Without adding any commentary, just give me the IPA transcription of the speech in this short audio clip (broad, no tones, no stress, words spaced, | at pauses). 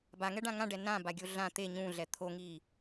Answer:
baŋɛɖã ŋãɖɛ nãbaɡʲo ɮã t̪e ɲũɮɛ t̪ʰoŋiː